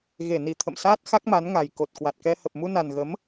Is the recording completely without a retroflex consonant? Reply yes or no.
yes